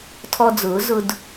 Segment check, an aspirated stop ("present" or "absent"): present